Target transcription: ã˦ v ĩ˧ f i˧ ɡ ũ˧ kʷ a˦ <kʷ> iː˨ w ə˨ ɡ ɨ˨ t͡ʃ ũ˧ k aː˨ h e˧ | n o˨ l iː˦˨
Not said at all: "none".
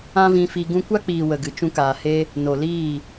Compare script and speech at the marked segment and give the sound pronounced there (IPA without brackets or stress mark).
k͡p